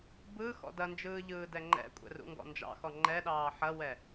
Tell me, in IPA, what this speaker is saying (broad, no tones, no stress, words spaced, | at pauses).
bɯ xɔ̰dɐnd͡ʒɯː ʎɯːdɛŋ͡ǃɛ̰kʷʼɛ̰ rṵŋɡɔ̰nd͡ʒɑ̰xɔ ŋ͡ǃɛɗɑː ħɐwɛ